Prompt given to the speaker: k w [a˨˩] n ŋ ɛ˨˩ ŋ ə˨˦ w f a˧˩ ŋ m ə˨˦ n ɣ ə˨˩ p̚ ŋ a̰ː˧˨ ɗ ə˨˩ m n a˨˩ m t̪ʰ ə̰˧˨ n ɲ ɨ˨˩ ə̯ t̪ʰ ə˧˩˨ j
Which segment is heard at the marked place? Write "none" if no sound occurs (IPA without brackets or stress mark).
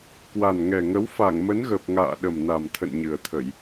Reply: a˨˩